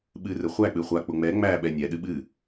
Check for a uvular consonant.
present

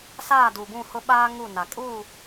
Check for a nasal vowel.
present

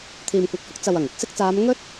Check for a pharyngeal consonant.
absent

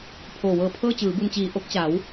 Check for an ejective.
absent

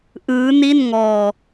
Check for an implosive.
absent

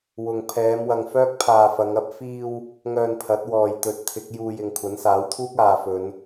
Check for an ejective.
absent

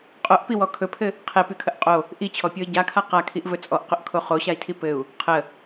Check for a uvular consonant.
present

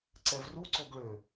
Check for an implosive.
absent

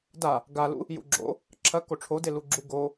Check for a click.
present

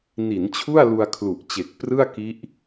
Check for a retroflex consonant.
absent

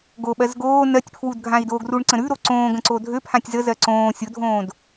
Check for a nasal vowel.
present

